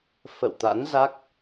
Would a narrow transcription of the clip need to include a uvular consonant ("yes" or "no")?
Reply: no